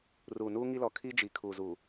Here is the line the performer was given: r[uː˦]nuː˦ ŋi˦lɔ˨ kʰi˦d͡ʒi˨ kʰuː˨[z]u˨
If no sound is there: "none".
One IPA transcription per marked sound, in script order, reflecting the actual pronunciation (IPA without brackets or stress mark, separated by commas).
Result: uː˨, z